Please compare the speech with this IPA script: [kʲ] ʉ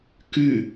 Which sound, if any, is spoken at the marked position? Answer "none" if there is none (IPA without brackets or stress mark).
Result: k